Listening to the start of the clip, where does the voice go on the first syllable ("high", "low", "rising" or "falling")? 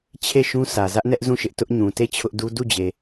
falling